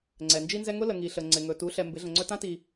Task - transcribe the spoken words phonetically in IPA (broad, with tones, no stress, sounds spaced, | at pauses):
ŋ͡ǀ ɛ˨ n d͡ʒ i˦ n z ɛ˦ ŋ ʊ˦ l ə˨ ŋ i˨ ɬ ə˨ ŋ͡ǀ ɪ˨ ŋ ɵ˨ t u˨˦ ɬ ɛ˨ m b ɪ˨˦ ɮ ə̃˨ ŋ͡ǀ ɵ˦ t ã˦ t i˨